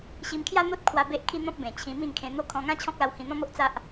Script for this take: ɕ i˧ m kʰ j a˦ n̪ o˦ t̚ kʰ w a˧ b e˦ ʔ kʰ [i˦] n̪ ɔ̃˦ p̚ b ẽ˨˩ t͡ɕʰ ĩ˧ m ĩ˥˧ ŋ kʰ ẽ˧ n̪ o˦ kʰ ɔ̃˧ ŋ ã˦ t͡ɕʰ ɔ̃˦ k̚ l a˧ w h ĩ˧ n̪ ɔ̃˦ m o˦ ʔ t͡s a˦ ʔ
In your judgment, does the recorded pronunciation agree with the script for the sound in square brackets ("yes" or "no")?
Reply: yes